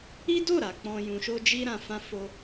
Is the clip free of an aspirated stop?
yes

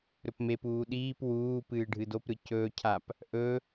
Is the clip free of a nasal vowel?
yes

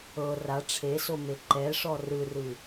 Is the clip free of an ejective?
yes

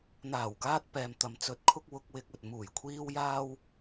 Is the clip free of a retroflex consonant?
yes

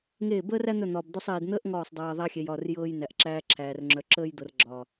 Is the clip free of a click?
no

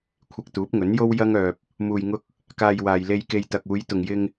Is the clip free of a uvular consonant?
yes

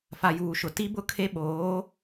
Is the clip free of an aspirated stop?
no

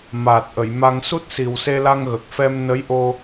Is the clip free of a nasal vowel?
yes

